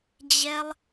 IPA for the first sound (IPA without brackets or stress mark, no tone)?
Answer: d͡ʑ